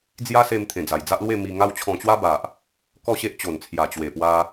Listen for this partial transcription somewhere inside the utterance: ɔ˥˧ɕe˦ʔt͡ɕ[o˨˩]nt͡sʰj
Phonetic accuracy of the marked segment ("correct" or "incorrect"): correct